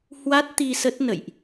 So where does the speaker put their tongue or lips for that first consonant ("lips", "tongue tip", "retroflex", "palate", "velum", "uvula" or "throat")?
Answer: throat